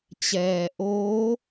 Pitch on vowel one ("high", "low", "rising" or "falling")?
low